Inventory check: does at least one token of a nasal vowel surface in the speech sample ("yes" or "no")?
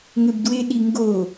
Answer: no